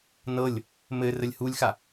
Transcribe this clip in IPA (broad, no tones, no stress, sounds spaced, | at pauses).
n ɤ lʲ | m ɘ r ə lʲ h u lʲ x a